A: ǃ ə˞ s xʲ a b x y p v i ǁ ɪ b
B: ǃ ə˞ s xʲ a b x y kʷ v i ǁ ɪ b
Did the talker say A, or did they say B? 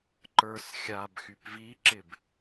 A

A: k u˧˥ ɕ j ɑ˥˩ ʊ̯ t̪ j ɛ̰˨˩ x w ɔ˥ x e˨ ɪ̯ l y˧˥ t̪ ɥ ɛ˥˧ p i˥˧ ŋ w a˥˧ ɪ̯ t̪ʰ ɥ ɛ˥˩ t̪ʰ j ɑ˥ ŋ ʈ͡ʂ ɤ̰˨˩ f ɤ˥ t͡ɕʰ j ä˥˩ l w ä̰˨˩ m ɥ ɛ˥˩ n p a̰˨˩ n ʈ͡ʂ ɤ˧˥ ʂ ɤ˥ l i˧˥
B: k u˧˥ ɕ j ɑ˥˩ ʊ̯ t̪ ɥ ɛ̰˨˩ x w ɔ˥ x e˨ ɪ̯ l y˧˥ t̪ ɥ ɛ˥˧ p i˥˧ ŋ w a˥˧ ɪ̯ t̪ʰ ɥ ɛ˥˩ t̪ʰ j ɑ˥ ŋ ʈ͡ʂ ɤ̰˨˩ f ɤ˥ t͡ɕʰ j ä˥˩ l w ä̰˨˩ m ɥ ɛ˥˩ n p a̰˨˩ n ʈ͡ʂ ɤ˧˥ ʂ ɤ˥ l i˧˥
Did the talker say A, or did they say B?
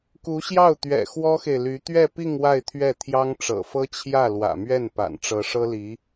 B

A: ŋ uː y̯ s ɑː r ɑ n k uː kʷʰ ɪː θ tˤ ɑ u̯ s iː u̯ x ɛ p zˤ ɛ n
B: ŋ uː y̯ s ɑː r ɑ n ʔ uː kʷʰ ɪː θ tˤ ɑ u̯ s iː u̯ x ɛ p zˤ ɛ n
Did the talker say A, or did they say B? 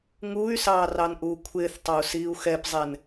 B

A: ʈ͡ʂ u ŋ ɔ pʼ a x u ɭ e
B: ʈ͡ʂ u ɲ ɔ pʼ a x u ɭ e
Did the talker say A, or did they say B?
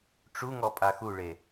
A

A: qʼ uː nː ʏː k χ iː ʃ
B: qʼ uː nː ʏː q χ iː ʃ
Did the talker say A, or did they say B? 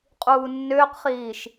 B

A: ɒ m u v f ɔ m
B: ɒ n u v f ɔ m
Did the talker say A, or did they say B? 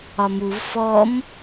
A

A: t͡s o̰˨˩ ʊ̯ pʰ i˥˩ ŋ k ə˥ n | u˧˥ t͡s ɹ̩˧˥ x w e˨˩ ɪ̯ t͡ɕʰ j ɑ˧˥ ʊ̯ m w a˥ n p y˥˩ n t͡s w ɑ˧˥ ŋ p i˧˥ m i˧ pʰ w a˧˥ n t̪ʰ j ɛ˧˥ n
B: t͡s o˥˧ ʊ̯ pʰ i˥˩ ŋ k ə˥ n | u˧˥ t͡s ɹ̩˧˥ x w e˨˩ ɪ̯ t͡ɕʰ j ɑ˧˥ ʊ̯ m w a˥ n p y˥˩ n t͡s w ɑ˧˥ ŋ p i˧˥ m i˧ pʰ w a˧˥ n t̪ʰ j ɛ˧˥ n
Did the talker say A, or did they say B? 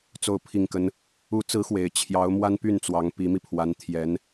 B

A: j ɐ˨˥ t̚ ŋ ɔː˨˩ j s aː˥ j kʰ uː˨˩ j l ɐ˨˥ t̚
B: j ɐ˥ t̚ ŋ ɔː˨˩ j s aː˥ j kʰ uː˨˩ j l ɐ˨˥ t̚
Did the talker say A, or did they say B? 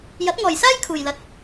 A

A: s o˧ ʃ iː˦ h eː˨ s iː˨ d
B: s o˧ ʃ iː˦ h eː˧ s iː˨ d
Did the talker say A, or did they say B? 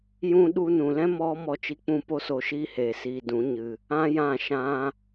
A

